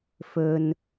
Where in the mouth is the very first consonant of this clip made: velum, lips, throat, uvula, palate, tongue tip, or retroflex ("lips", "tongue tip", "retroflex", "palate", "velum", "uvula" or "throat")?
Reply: lips